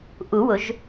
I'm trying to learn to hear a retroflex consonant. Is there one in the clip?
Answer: no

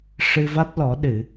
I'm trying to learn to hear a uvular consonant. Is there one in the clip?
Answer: no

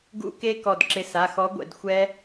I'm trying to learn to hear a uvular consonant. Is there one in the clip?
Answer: no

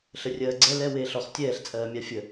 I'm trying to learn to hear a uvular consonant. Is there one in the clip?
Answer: yes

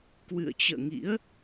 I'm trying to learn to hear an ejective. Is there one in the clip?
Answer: no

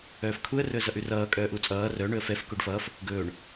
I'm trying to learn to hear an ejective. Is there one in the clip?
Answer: yes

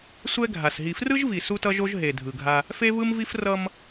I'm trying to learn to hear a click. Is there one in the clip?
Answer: no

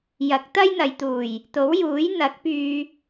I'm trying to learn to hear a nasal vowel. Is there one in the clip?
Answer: no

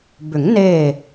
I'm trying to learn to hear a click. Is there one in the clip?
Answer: no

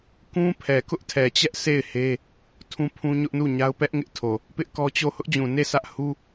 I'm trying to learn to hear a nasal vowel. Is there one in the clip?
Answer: yes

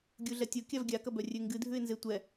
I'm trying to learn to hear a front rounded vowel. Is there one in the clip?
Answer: yes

